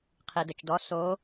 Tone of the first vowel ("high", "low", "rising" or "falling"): low